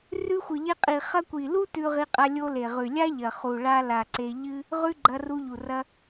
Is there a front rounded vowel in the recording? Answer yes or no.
no